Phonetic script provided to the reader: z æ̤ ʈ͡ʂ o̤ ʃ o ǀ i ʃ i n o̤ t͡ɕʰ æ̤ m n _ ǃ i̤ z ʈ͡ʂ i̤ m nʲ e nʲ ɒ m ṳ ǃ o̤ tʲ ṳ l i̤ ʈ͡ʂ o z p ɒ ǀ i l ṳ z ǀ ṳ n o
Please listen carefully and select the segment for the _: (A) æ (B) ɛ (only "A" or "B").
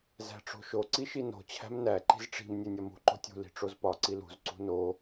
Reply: A